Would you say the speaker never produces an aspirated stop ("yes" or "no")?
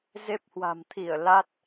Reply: no